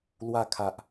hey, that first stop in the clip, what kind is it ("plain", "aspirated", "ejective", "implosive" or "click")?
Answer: aspirated